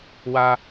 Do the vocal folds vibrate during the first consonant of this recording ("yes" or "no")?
yes